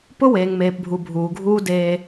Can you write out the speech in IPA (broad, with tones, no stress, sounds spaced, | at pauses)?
p ʊ˦ w eː˨ ŋ m eː˨ p bʱ u˨ bʱ uː˨ ɡʱ uː˦ d eː˦